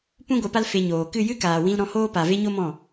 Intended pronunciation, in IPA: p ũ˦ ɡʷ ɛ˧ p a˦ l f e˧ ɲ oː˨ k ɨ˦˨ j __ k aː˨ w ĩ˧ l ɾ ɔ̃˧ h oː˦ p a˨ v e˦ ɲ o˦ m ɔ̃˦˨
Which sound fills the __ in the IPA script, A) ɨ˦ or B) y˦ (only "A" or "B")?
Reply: A